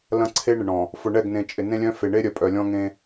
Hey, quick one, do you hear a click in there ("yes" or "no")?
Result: yes